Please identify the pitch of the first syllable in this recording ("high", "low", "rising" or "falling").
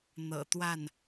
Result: low